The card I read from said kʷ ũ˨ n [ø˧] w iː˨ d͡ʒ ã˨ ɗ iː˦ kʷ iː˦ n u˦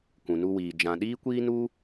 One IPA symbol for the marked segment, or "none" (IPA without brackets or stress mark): u˧